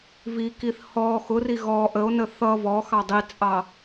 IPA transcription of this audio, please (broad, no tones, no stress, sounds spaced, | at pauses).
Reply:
v i k i θ h ɔ x ʊ r i ɣ ɔ ʔ ə o̯ n ə θ ʌ v ɔ x ɑ dˤ i t͡sʼ ɑ